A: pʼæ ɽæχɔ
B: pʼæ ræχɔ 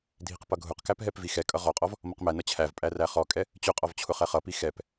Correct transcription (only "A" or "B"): B